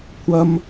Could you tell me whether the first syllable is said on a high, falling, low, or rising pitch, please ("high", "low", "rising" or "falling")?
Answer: high